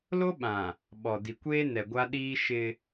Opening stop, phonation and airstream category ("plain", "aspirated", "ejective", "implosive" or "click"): implosive